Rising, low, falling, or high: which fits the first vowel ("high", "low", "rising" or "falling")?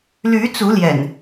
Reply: rising